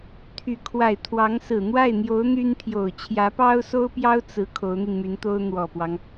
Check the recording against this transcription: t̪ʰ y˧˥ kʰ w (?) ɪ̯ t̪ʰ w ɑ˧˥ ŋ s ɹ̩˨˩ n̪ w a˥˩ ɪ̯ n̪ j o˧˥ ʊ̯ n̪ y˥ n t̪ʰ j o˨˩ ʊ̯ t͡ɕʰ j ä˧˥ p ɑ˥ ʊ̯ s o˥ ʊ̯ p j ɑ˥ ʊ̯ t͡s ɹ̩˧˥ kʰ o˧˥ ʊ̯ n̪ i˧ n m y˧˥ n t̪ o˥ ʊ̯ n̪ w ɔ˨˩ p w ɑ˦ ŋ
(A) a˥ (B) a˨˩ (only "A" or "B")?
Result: B